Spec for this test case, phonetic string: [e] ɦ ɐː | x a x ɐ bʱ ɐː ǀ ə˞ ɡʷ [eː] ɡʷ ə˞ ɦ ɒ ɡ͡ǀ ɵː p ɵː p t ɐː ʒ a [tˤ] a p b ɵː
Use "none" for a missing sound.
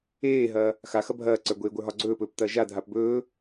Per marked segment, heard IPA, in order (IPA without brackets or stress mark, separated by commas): eː, eː, dʱ